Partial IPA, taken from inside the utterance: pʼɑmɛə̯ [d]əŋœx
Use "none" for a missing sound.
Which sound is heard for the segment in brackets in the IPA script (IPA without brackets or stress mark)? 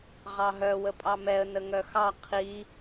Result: n